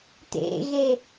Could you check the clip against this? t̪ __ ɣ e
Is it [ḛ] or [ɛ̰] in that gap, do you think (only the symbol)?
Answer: ḛ